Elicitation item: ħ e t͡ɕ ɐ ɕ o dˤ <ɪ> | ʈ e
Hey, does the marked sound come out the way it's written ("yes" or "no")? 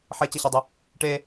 yes